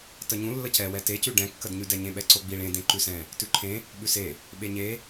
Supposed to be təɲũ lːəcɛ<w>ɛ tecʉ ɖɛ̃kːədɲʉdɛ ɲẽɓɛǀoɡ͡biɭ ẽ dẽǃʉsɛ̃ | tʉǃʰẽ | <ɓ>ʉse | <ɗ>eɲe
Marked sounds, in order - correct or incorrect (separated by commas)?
correct, correct, incorrect